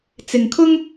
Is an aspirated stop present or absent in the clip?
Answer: present